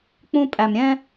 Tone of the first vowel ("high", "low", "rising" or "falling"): high